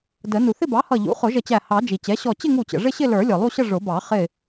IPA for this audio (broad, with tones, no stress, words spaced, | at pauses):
də˨˩˦ nu˩θɪ˥˧bɑ˩˥hʌ˧˩ ʎṵ˩˥χʊ˨˩˦ʒə˧˩t͡ɕæ˧˩ hɑ˨˩˦ d͡ʒi˩t͡ɕɛ˩˥ɕɔ˧˩ t͡ɕɪ˥˧ŋu˧˩t͡ɕə̰˩ ʐɪ˥˧ɕɪ˥˧lə˞˨˩˦ lʲɔ˩lˠu˥˧ɕə˥˧ ʐʊ˨˩˦bɑ˨˩˦ χɪ˧˩